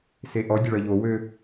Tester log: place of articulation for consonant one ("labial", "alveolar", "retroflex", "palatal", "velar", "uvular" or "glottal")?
alveolar